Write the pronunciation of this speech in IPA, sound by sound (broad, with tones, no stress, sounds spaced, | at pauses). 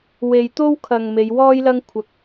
w e˨ j t̪ o˥ w kʰ ɐ˨ ŋ m e˨˧ j w ɔː˥ j l ɐ˥ ŋ kʷʰ ɐ˧ k̚